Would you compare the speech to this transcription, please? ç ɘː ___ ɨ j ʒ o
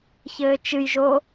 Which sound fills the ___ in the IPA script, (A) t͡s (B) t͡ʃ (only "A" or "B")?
B